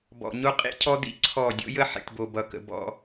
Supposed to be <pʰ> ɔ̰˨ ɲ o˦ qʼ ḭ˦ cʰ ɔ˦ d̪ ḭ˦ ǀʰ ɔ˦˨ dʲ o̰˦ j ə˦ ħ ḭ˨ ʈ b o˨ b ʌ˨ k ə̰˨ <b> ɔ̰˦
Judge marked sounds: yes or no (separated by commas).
no, yes